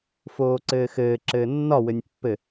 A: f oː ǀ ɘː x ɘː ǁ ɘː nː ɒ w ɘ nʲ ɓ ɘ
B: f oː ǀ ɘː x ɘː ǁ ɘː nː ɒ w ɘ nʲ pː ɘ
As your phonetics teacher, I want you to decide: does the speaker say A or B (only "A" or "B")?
B